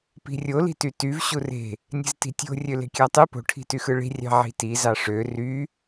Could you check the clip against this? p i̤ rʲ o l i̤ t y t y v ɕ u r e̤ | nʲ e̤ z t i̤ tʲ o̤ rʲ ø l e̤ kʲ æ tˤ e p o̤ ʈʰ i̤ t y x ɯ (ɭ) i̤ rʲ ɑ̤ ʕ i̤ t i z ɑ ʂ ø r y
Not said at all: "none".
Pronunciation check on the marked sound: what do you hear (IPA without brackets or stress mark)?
ɭ